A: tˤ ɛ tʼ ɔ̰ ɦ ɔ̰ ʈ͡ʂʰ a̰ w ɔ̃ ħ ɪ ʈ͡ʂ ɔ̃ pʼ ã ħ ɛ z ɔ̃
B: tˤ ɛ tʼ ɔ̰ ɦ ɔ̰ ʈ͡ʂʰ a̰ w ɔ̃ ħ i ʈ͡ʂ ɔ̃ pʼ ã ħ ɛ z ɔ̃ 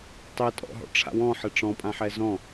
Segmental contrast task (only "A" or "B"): A